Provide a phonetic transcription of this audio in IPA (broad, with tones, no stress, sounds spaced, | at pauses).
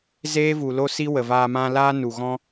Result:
z eː˦ v u˨ l o˦ s i˦ w ə˨ v aː˧ m ã˦ l aː˦ n u˨ ɣ ɔ̃˦